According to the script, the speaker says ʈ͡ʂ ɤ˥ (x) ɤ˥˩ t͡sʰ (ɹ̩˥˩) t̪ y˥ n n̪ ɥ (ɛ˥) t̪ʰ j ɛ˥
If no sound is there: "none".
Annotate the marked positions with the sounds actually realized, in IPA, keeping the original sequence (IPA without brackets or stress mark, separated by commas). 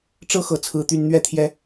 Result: x, ɹ̩˥, ɛ˥